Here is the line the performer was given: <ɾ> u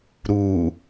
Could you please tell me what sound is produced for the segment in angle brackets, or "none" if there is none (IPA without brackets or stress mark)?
ɾ